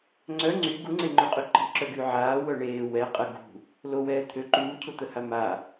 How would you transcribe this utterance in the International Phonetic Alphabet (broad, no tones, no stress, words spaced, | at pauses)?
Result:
ŋ͡ǀœ ŋ͡ǀy ɡuŋ͡ǀeŋ͡ǃoqʼy ǃi̤ǁœɡy ʕaːwœ ɳeː wɛ qʼə ɡṳ | lowɛː t̪ʰø ǃuːcʰut̪əha ma